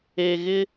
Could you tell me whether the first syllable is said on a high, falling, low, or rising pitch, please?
low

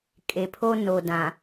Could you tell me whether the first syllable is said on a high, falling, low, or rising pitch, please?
low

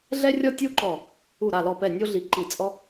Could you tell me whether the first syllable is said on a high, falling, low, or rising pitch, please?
high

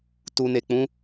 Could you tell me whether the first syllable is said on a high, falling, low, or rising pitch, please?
low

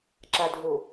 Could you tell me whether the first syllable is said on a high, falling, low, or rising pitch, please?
low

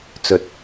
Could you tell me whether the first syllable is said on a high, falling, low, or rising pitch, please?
low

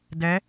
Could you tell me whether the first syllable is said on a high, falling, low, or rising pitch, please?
rising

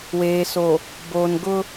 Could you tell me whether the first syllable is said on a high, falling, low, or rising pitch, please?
low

